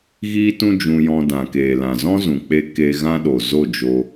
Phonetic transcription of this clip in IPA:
ɣ iː˦ t ũ˦ d͡ʒ ũ˧ j ɔ̃˧ d ã˨ k eː˨ l ã˨ z ɔ̃˦ z ũ˨ k͡p e˧ k e˧ ɣ ã˦ ɗ o˨ z o˦˨ d͡ʒ o˧

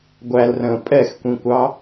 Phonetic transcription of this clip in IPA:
ɡʷ æ l r ə̃ː pʼ ɛ x kʷ ĩ kʷ ɑ

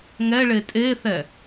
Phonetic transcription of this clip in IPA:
ŋ ɛ ɭ e tʼ e θ ɛ

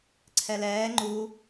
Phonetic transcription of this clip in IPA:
ǀʰ ɛ l ɛː ŋ͡ǃ u

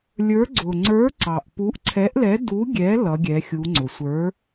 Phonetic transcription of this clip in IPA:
lʲ ə˞˨˥ ɡ͡ǀ ʊ˩ ŋ͡ǀ ə˞˨˥ ǀ ɑ˩ ʔ p u˨˥ ʔ ǀʰ ɛ˨˥ ʔ l ɛ˨˥ d u˨˥ ɡʲ ɛ˨˥ l ʌ˨˥ ɡʲ ɛ˨˥ xʲ u˨˥ ŋ͡ǀ ʊ˩ sʷ ə˞˨˥

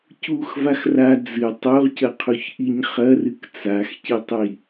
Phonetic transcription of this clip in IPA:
c u x v a x r a d͡z ɨ tˤ o ʁ c ɐ qʰ u ç ʔ i ɲ χ ɐ r ɨ k t͡s a x c i tˤ j i

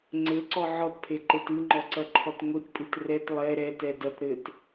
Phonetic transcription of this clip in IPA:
ŋ͡ǀ ɘ ǀ ɔ ʕ ɔ t pʰ e ǃ e t ɨ ŋ͡ǃ ɔ ǀ ɐ ǃʰ ɔ t ŋʷ i t pʼ ɨ t r ɛ t lˠ ɛ ɾ ɛ t ɛ d ɐ t ɾ ɘ t

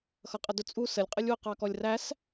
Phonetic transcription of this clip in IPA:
x ʌ qʼ ə d ʊ t͡sʼ u s ə lʲ qʼ ə lʲ w ʊ q ɑ k ɔ lʲ r æ s

